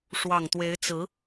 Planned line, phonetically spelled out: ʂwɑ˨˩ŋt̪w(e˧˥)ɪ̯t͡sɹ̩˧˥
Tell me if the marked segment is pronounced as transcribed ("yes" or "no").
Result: yes